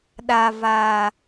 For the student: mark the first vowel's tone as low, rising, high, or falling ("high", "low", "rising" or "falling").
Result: low